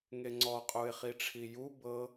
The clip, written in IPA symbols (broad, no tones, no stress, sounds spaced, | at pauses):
ŋ e ŋ͡ǀ ɔ qʼ u ɪ̯ χ i ʈ͡ʂʰ i j u b ɤ